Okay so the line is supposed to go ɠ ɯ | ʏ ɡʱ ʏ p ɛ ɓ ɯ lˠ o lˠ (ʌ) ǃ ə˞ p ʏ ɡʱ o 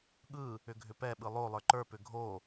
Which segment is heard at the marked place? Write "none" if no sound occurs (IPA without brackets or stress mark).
ə˞